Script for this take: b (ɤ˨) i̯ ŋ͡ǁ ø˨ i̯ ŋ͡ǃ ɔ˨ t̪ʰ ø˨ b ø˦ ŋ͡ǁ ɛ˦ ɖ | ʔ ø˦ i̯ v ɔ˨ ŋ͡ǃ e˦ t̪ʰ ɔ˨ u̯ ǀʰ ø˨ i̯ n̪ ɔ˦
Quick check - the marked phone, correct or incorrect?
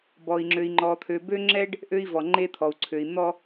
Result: incorrect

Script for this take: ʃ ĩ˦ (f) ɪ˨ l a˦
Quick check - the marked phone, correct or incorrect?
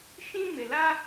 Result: incorrect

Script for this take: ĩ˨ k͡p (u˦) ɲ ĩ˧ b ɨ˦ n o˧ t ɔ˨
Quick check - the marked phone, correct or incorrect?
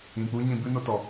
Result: correct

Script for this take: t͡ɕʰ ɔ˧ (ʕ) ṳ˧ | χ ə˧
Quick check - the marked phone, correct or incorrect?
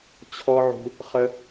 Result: correct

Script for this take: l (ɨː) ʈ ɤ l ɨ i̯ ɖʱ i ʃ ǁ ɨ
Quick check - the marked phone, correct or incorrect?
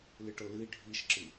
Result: incorrect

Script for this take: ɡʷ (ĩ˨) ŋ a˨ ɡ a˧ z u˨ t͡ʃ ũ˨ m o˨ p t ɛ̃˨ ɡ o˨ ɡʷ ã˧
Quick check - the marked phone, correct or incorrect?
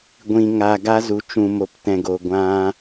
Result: correct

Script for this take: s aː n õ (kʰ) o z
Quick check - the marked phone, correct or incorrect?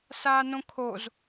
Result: correct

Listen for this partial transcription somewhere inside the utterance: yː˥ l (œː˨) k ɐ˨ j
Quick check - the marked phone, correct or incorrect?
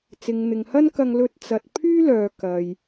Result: correct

